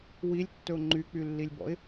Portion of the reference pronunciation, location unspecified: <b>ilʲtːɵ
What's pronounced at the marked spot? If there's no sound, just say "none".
w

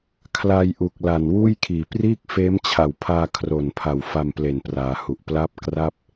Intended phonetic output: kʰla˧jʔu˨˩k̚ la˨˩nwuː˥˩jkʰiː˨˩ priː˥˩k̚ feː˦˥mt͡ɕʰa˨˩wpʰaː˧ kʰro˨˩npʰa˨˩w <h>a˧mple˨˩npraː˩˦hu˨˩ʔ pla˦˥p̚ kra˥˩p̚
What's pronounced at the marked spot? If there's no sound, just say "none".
f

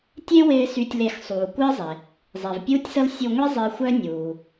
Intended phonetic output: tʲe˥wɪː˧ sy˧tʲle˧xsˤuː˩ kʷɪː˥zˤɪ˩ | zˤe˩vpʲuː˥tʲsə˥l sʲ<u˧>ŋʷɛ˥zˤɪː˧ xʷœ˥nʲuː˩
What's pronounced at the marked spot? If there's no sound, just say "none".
u˧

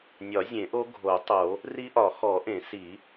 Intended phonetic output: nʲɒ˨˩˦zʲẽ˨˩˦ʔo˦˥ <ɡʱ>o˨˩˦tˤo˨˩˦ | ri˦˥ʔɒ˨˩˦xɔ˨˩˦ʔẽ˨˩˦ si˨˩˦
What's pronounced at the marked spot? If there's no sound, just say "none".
ɡʱ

